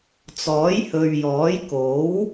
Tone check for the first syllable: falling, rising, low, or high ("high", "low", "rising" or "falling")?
rising